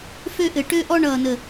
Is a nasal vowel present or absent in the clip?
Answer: absent